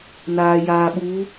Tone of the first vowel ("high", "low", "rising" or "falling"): low